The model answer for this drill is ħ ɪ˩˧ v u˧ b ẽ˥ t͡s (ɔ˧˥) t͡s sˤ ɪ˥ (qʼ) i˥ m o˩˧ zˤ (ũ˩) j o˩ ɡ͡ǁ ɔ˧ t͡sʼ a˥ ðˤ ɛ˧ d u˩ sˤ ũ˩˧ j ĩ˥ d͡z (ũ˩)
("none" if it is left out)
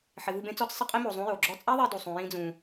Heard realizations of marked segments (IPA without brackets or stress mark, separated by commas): ɔ˧˥, qʼ, ũ˧˥, ũ˧